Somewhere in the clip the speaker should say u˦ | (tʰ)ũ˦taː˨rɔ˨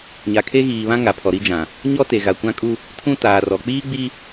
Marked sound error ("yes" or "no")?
no